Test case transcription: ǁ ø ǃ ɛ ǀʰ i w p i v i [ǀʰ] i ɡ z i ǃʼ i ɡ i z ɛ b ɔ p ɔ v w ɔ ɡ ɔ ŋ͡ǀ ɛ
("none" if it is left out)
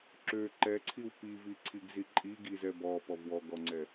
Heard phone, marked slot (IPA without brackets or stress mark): ǀʰ